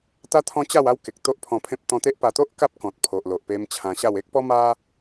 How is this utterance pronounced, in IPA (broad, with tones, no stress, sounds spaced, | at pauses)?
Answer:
t̪ a˦ t̪ʰ ɔ̃˦ t͡ɕ a˥˧ w a˦ w k e˨ k̚ t̪ o˦ ʔ pʰ ɔ̃˧ pʰ ẽ˦ p̚ t̪ ɔ̃˧ t̪ e˦ ʔ p a˧ t̪ o˦ ʔ k a˦ p̚ k ɔ̃˨ t̚ pʰ o˨ ʔ l o˨ ʔ p e˧ m t͡ɕʰ ã˧ ɕ a˥˧ w e˦ k̚ p ɔ˦ m a˦